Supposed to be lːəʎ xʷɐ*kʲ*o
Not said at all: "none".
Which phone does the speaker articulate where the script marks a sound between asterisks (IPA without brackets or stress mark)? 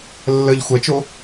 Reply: t͡ʃ